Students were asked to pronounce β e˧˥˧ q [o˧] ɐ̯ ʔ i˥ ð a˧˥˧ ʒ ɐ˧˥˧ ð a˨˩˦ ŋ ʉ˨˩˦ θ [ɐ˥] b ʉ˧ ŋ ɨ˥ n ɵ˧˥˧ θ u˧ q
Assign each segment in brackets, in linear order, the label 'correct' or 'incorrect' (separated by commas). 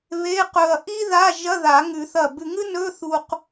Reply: incorrect, incorrect